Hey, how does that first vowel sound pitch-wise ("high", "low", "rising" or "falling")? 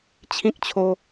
high